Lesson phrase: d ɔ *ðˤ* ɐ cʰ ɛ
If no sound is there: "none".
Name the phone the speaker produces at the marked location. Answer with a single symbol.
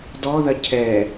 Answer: ð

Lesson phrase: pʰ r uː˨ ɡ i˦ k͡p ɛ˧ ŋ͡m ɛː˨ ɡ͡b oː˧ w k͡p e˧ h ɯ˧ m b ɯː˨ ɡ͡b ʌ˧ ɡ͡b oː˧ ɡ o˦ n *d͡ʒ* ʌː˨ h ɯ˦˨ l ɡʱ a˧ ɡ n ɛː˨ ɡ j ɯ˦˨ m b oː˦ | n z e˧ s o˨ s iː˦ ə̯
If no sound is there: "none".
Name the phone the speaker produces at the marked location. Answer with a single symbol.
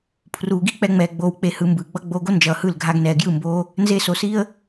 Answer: d͡ʒ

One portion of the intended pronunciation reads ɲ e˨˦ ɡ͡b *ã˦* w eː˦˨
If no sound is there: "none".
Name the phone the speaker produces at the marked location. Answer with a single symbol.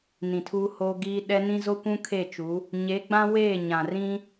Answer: ã˦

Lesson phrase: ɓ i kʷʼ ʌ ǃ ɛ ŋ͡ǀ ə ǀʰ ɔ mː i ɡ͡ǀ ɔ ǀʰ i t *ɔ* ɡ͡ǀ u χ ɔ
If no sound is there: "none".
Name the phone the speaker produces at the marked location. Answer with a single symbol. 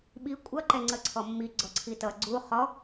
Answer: ʌ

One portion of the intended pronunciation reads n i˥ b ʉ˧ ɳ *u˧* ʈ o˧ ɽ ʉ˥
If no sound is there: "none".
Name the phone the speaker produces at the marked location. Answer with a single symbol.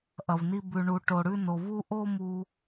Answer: u˧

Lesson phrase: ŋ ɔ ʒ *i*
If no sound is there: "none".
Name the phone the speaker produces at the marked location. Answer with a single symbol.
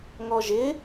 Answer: ɪ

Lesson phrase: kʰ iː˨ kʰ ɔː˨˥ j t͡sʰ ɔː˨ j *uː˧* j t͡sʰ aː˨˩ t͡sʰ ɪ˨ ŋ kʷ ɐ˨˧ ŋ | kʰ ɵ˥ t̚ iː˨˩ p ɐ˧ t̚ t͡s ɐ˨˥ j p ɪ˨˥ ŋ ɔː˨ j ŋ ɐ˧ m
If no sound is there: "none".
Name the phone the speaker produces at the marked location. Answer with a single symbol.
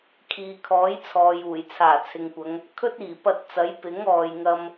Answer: uː˨˩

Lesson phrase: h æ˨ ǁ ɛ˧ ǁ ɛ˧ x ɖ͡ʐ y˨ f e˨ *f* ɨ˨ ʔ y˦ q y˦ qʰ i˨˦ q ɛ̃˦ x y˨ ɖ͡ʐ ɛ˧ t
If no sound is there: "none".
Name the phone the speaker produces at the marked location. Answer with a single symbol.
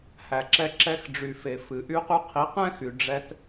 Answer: f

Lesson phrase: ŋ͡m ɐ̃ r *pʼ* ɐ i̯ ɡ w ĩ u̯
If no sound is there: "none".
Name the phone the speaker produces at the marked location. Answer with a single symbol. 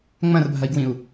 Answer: bʱ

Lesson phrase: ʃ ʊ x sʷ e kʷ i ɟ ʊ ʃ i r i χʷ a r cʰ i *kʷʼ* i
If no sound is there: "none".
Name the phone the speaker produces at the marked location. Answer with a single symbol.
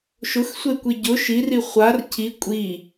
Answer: kʷʼ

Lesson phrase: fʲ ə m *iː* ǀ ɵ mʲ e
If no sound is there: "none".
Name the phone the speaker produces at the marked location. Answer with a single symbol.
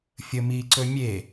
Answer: iː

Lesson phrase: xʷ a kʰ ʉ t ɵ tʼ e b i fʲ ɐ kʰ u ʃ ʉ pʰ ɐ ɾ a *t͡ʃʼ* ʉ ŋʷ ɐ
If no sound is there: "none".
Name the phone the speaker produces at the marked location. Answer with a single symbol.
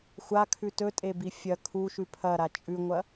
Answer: t͡ʃʼ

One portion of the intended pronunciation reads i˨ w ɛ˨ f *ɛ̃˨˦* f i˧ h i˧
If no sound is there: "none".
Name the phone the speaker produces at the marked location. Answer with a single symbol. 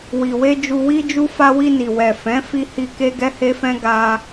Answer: ɛ̃˨˦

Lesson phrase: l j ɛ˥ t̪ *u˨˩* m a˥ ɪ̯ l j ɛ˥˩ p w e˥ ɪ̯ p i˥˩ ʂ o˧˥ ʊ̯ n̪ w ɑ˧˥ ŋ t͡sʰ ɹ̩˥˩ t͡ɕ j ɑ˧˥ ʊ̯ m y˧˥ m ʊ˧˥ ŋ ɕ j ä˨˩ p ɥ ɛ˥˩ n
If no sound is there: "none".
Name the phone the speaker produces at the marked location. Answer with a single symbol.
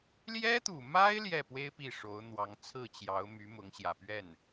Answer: u˨˩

